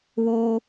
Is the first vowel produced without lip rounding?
no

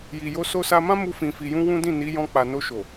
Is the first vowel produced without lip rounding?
yes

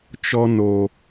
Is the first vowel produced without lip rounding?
no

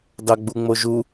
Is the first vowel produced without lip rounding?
yes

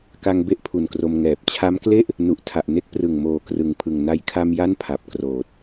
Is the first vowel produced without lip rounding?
yes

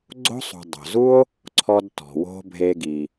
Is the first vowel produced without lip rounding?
no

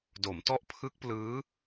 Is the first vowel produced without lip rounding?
no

